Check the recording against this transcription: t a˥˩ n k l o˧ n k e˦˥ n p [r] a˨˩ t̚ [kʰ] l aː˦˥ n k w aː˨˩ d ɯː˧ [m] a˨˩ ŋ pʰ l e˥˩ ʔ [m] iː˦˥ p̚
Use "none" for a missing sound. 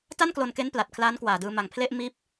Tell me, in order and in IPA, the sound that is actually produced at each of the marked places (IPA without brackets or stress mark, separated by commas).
l, kʰ, m, m